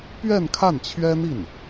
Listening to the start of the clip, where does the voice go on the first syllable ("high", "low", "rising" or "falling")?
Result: falling